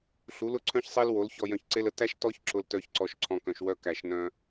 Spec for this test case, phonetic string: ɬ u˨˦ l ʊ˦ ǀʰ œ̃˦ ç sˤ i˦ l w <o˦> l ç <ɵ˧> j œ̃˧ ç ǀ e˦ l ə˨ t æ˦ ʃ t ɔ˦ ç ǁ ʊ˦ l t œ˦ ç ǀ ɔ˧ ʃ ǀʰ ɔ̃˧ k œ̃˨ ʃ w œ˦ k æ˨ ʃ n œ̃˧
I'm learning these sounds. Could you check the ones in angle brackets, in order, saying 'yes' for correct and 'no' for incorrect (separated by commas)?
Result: no, no